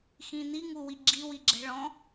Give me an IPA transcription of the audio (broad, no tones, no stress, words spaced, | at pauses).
xĩn̪i ŋuwiɡ͡ǁi wiɡ͡ǁɛ̤ɭɔ̃